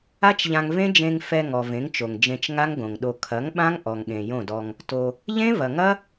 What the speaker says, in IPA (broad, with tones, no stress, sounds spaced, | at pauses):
a˦ t͡ʃ ʎ ã˧ ŋ v ẽ˦ d͡ʒ ẽ˧ ŋ f ɛ˧ ŋ ɔ˨ v ẽ˨˦ ŋ t͡ʃ o˨ ŋ d͡ʒ ẽ˧ t͡ʃ ŋ a˦ ŋ ɡ õ˨ ŋ ɗ o˧ kʰ ɐ˨˦ ŋ ɓ ã˦ ŋ ʔ ɔ˨ ŋ ɠ ẽ˨ j õ˦˨ d ɔ˧ ŋ | t o˧ | ʎ ẽ˦ v ɐ˨ ŋ ɐ˦